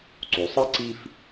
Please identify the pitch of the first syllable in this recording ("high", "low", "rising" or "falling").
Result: low